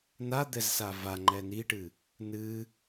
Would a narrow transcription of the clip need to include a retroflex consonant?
yes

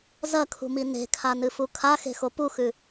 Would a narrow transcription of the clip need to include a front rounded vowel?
no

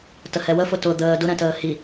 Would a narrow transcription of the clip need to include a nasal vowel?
yes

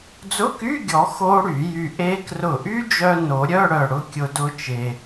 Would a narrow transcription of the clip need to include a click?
no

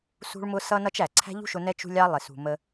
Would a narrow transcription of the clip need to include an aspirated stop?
yes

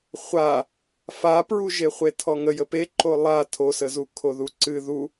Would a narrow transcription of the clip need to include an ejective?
no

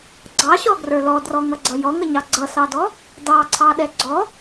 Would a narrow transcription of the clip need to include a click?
yes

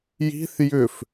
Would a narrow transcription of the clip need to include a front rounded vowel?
yes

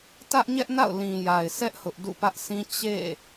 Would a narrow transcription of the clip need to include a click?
no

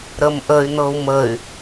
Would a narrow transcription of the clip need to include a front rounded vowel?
yes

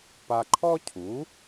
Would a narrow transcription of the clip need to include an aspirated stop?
yes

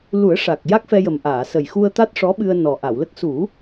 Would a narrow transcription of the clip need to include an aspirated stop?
no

